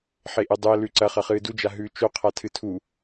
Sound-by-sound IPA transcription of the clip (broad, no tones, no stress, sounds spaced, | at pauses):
ħ e ʔ ɨ dˤ u ə̯ l ʉ ǀ ɐ χ ɐ χ ɨː d u d͡ʒ a ɦ ʉː t͡ʃ o qʰ a tʰ ɨ tʰ u